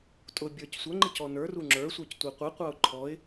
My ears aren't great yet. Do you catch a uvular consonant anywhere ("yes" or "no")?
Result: yes